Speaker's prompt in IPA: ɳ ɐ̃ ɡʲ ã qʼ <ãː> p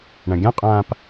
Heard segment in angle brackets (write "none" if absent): ãː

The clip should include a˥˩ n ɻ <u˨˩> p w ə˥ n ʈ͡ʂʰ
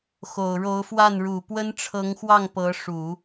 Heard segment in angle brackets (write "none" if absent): u˨˩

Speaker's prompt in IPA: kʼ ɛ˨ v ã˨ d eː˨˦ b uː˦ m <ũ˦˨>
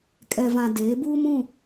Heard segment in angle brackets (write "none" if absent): ũ˦˨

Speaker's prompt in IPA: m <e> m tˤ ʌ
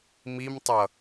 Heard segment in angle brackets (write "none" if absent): i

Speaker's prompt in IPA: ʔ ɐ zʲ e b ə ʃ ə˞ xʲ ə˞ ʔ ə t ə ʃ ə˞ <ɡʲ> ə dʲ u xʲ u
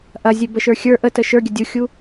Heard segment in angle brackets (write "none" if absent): ɡʲ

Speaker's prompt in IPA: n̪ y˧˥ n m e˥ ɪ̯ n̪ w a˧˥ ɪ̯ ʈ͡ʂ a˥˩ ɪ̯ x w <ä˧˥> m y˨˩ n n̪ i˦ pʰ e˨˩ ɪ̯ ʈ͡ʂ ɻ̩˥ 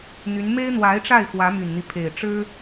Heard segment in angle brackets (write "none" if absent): ä˧˥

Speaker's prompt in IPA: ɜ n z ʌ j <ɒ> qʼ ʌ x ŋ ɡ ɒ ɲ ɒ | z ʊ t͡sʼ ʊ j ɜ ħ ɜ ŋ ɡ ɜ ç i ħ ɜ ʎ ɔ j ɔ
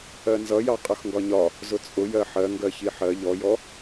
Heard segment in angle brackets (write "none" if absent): ɑ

